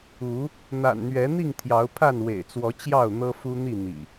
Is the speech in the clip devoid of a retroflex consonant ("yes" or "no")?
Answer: yes